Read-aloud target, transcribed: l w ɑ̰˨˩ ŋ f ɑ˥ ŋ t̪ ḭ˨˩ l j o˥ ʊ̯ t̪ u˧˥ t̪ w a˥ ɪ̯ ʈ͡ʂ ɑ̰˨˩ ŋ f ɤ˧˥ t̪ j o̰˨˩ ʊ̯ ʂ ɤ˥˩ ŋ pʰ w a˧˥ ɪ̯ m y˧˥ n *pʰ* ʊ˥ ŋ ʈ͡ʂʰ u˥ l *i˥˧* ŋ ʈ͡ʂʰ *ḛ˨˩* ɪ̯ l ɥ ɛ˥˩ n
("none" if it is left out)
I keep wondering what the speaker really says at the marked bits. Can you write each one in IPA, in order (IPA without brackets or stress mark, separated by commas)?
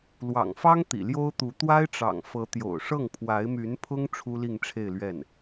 pʰ, i˥˧, e˥˧